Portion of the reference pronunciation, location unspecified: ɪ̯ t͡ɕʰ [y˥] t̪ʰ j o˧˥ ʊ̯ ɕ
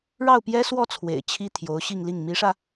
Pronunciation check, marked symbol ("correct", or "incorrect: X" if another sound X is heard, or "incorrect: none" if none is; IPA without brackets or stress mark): incorrect: i˥